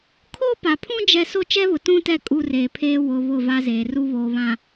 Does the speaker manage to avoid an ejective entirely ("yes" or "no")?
no